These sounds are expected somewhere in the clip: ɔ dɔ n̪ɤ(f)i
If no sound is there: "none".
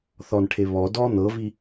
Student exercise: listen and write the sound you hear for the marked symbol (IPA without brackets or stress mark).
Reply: v